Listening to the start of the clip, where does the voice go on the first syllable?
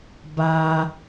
high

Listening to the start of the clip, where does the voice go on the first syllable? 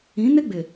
rising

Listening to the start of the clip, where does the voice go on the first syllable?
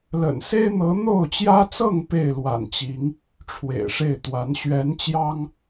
low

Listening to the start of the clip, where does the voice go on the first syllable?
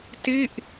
falling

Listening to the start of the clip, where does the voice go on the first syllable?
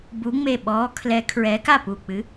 rising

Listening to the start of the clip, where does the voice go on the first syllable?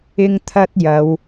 high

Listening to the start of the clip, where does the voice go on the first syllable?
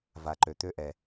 low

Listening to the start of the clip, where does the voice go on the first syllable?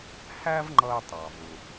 high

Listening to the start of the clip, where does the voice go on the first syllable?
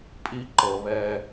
high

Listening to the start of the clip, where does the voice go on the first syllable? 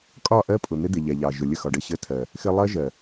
falling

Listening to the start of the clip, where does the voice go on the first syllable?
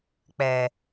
low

